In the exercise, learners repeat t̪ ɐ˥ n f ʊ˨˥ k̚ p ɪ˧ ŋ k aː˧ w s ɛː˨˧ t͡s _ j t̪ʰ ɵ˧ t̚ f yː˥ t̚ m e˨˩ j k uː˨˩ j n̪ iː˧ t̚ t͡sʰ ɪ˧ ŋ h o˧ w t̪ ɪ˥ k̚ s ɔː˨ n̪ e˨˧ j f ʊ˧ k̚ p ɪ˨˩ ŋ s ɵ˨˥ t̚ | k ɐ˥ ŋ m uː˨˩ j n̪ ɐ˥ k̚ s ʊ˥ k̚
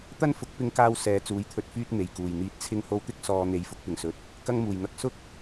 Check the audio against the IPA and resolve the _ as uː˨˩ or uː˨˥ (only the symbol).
uː˨˥